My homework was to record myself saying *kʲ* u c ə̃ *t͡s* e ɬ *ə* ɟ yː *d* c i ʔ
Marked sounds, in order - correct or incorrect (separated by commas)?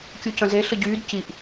correct, incorrect, correct, correct